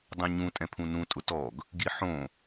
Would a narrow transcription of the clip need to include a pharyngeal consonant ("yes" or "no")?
yes